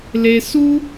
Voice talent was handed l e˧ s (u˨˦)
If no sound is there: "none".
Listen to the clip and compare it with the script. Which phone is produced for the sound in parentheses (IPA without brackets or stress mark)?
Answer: u˦